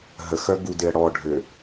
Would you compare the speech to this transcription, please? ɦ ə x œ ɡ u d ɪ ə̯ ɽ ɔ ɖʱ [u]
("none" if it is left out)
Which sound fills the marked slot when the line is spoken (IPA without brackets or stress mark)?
ø